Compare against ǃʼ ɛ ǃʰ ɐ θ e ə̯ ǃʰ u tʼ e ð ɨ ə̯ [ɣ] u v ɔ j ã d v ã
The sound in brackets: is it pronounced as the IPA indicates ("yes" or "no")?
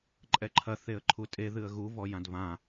yes